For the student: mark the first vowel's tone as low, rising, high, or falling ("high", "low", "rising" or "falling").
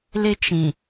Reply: high